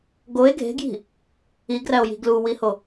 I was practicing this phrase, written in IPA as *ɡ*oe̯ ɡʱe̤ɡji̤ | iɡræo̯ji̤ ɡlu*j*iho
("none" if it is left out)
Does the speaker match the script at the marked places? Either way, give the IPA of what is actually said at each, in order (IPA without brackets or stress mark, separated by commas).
ɡ, w